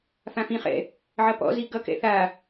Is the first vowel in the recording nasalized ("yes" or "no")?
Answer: yes